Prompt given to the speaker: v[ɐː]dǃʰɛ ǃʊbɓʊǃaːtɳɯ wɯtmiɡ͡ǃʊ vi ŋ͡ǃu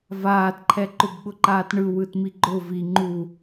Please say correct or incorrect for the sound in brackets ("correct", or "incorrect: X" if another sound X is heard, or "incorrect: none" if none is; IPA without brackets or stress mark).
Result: incorrect: aː